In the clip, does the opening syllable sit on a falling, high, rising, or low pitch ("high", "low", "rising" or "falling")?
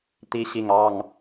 rising